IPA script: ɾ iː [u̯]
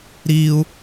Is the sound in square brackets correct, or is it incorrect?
correct